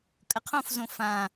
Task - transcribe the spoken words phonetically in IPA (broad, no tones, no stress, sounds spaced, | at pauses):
kʼ ə qʰ õ f z õ f ã